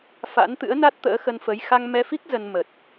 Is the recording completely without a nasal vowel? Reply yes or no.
yes